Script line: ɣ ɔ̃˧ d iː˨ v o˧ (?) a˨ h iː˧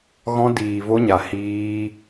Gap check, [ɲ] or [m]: ɲ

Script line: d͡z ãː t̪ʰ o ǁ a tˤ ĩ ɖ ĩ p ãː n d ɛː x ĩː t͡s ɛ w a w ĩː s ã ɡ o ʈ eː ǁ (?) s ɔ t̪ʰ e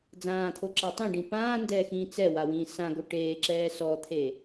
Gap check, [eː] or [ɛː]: ɛː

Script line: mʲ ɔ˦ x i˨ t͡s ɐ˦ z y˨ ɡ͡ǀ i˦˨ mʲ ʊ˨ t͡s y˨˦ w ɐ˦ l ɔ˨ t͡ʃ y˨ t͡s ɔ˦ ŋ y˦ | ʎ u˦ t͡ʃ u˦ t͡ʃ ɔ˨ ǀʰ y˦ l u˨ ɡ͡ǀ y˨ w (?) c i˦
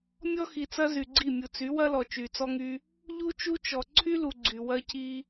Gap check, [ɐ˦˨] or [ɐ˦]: ɐ˦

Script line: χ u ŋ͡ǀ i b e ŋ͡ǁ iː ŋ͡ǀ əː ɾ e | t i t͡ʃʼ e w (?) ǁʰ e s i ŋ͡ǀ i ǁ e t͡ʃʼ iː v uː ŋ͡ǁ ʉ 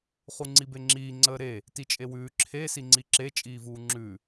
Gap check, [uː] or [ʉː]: ʉː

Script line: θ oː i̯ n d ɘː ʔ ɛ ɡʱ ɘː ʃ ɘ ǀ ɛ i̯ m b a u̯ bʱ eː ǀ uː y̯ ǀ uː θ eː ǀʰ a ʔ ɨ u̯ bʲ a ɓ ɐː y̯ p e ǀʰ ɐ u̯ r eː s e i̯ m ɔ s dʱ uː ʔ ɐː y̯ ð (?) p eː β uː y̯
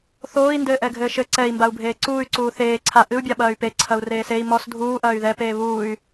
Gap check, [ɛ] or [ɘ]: ɛ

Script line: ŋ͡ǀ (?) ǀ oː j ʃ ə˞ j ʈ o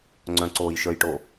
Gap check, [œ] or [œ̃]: œ̃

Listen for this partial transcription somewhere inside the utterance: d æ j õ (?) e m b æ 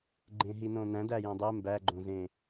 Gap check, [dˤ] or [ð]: dˤ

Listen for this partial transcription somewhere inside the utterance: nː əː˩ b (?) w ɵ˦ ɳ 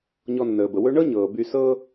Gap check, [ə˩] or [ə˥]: ə˩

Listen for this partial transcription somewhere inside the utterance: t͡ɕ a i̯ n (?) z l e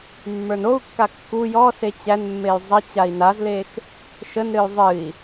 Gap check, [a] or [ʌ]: a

